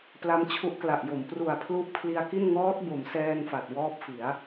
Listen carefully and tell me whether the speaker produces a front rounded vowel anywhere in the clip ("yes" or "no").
no